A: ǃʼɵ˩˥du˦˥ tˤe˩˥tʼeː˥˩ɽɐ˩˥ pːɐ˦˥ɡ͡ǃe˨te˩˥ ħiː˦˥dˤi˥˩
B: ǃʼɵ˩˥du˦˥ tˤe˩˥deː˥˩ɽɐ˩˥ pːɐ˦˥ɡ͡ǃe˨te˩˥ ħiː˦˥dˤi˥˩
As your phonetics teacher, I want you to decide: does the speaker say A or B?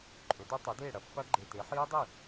B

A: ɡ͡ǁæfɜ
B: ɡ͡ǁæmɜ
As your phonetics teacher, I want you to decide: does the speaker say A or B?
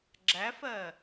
A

